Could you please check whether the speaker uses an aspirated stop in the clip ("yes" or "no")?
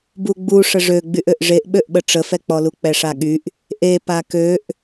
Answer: no